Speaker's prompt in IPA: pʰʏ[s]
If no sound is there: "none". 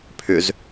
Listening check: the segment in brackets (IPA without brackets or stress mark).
z